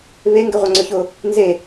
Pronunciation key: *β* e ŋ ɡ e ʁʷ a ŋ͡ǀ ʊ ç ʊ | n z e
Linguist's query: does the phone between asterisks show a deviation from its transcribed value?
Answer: no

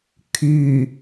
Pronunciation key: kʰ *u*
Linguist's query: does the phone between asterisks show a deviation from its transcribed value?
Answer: yes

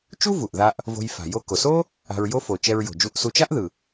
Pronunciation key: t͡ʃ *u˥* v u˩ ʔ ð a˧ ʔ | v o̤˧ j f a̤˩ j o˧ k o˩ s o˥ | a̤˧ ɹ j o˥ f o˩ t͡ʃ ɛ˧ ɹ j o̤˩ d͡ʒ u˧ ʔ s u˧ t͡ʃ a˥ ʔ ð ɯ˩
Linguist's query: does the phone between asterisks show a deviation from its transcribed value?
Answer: no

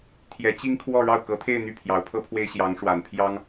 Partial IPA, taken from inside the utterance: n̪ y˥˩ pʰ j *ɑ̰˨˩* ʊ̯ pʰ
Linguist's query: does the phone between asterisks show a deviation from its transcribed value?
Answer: yes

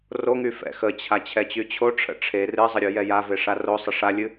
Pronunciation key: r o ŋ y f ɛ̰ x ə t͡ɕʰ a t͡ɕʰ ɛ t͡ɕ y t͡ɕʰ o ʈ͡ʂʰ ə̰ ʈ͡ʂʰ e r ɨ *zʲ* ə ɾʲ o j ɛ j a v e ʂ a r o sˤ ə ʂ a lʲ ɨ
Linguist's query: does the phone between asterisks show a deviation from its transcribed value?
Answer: yes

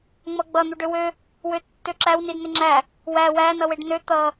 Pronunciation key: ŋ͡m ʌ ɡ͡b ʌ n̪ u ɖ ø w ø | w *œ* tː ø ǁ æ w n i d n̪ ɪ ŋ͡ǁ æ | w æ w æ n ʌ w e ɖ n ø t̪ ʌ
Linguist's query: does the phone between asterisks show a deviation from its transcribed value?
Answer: yes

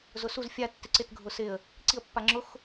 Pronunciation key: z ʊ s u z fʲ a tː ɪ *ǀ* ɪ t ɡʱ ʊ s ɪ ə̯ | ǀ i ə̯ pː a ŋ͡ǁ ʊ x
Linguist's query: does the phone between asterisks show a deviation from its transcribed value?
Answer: no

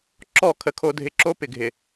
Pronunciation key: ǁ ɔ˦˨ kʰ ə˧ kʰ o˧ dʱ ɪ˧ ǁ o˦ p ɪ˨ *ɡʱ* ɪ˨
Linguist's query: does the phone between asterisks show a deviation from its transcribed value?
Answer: no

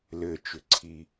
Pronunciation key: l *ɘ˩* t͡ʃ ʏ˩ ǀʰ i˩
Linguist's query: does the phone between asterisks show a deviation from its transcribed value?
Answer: no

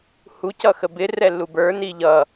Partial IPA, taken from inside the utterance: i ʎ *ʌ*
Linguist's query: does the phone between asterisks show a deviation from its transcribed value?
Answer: no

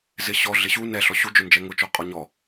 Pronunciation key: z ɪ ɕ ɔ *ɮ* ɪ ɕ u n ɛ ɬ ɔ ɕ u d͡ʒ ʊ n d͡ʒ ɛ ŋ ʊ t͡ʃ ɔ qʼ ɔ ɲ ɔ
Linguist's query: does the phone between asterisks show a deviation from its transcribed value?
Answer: no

